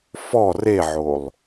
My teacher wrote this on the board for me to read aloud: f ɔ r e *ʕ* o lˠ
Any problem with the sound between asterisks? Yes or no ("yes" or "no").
no